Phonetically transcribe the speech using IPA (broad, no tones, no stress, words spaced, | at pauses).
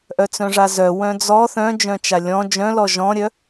ʔœt͡sœ̃ʐazœ wœ̃d͡zɔ θœ̃d͡ʒœ̃t͡ʃa lʲɔ̃ d͡ʒœ̃lɔ ʒɔ̃ɾʲœ